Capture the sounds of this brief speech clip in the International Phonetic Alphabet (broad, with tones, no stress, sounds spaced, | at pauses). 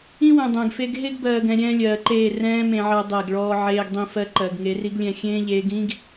ĩ˦ w ɛ̃˨ dˤ ɛ̃˨ ɡ f e˦ ɡ ɦ e˦ ɡ b ɜː˨ ɡ ɛ̃˨ ɾʲ ɛ̃ː˦ lʲ ɜː˨ ǃ eː˦˨ r ɛ̃ː˦ m ẽ˨ ʕ ɜ˨ dˤ ɛ˦˨ ɡ ɭ ɔː˦ ʕ eː˨ ɡ dˤ ĩ˨ f ɜ˨ ǃ ɜ˨ ɡ ŋ e˨˦ r i˦ ɡ lʲ ɛ̃˦˨ xʲ ẽː˦ ʎ eː˨˦ ɡ ĩ˦ ɡ